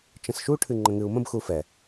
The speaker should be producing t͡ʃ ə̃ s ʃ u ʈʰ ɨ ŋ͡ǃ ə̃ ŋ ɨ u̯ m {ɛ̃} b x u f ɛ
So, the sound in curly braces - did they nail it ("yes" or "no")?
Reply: no